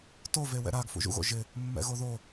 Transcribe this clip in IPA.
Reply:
tove wɛ̰ɾaɡfṵ ʒṵɣo̰ ʒɪ | mːɛ̰ɣoðo

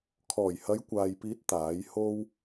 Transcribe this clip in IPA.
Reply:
kʰɔː˨˩jhɐ˨˧jkʷaː˨jpiː˨˥t̚ t̪aː˨˥jho˥w

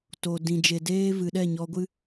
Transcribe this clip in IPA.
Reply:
to˨ dĩ˨d͡ʒe˨deː˦ vɨ˨ɗɛ˦˨ɲɔ˧ɡʷɨ˦

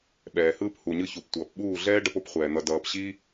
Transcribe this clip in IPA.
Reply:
ɓɛː˨hɯː˦p hu˨ɲɯ˧ çu˨ptʷʌː˨pɓuː˦˨ ɮɛː˦ɖʌ˧po˦pχʷɛː˨ n̪ʌ˧dʌː˧p ɕi˦

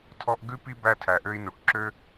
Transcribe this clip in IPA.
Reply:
tʰɔ˦ʔ ɡʉ˥pi˥bæ˦ tʰæ˨ʔø˦i̯nu˨ʈǁø˥

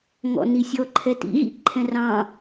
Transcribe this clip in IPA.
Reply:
ŋɔ̰nisʲɔ ǃʰɛtḭɣḭ ǃʰɛ̃rɑ̃

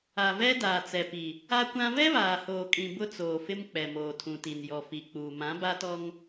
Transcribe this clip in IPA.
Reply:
a˨vɛ˦ daː˨t͡sɛ˨pi˨ | a˦kʷã˦ vɛ˦βaː˨hoː˨kʼĩ˨ bʊ˦t͡soː˨fɪ˦m k͡pɛ˨moː˨tʰũ˨ti˨n jɔ˨fi˨k͡puː˨ mã˨˦ba˦tɔ˦ŋ

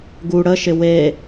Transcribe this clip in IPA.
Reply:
ɡu ɽəʃɪ we

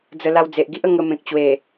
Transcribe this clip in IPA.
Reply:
d͡zə˧ la˧wd͡ze˨ʔɡi˦ʔə˧ ŋə˧mẽ˨k̚t͡ɕwe˨˩

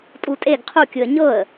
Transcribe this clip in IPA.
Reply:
tʼutʼeɡ qʰu kʲɯə̯ɲɤə̯

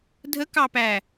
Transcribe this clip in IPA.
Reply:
dʱəkɑpæ

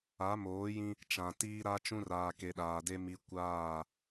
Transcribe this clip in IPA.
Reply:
a˨˦moː˨˦jĩ˦ | t͡ʃã˨ tiː˦ɾa˦ t͡ʃũ˦raː˨ke˨ ɗaː˨de˦ mi˦ kʷaː˦˨

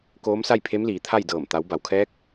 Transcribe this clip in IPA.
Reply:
koː˧˥msa˥˨jpʰe˧˥mliː˩˧ t̪ʰa˥˨jdɤː˧˩m t̪a˩˧w ba˩wkʰɛː˧˥k̚

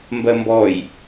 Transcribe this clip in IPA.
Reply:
mbɜmbɔj

